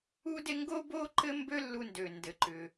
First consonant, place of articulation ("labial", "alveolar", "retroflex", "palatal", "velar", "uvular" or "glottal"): alveolar